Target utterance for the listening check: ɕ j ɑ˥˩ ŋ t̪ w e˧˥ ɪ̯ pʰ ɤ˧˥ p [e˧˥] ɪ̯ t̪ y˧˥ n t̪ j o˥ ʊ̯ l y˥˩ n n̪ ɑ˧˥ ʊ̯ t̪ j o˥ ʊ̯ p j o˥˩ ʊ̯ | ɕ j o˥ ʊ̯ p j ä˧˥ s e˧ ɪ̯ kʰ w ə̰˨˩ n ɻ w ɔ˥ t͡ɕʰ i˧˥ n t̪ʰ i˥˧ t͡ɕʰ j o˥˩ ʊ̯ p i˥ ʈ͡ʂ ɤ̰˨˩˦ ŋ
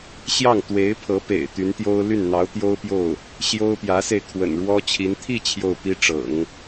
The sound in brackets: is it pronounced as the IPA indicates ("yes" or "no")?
no